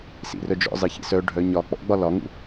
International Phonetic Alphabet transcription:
sḭrœd͡ʒɔ̰zˤi çḭsœɖʱœ ɲɒ k͡pɔ̰ɡ͡bɒ lɒŋṵ

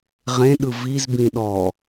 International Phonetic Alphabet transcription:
ʁẽɗɯ vizbĩ ɗɔ

